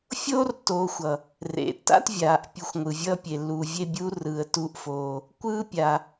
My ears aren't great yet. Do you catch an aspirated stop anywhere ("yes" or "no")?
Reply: no